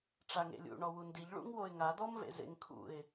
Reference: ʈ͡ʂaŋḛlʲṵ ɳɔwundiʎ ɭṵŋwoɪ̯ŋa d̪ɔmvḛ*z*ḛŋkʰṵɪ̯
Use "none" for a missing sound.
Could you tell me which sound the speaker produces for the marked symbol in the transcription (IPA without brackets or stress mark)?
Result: z